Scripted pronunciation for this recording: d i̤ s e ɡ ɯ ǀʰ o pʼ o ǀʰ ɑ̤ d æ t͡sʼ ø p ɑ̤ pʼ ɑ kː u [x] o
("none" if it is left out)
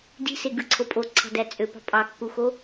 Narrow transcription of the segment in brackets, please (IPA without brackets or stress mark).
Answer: x